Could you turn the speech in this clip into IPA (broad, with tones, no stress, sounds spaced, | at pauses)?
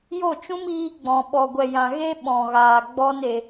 j o˦˨ t͡ʃ ũ˦ m iː˧ ɡ͡b ɔ̃˨ ɓ ɔ˨ ɡʷ ɛ˨ j ã˨ ɣ e˦ ɓ ɔ̃˨ ɣ aː˨ ɡ͡b ɔ˦ n e˧